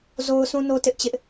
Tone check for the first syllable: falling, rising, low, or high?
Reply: high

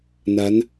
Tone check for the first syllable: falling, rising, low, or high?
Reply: rising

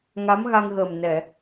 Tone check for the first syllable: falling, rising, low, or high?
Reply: rising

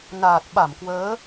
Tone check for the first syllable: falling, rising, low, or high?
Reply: low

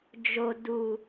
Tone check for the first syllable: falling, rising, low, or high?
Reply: low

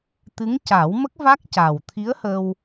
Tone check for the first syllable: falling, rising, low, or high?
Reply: rising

